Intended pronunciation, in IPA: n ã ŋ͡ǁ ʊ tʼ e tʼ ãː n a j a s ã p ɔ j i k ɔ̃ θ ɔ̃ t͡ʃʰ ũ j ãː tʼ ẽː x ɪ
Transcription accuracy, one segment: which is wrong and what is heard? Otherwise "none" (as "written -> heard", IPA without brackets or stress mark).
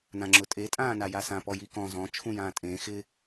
θ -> z